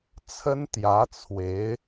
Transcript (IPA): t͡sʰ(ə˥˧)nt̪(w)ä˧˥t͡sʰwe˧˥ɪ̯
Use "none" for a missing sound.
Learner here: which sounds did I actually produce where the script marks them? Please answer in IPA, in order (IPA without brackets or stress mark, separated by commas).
ə˥, j